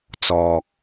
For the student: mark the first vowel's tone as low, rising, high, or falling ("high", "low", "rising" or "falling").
low